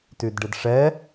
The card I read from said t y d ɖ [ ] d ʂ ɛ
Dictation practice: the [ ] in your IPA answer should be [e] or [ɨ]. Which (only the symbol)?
ɨ